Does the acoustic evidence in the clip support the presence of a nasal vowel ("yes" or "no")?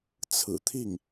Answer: no